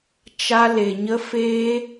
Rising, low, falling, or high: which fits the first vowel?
high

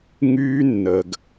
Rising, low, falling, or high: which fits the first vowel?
high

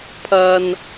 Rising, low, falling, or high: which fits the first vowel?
high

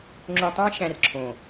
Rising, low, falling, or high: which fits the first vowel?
low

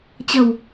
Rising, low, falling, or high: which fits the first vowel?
low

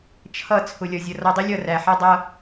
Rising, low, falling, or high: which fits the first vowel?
falling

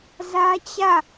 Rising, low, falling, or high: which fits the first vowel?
high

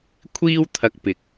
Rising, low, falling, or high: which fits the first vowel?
high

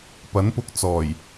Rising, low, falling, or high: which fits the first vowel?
rising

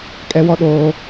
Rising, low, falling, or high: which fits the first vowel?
high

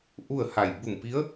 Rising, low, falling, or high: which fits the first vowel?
falling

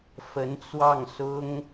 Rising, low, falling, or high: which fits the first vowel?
rising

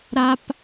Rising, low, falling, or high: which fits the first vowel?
high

